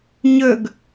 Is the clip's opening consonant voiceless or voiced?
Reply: voiced